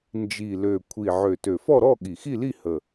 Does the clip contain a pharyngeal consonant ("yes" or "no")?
yes